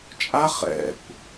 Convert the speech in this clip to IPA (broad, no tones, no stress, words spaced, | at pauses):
t͡ʃʼa χɛ̰kʷ